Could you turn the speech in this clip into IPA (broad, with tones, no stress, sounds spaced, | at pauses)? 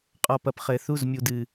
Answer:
qʼ ɔ˨ p ɐ˨ p χ ɘː˨ θ u˦˨ z mʲ u˨ d ɨ˨